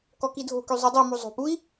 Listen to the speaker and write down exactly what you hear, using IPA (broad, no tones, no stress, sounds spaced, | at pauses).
k ɔ k i dʱ o̤ k y zˤ u dˤ i m u zˤ o̤ p u i̯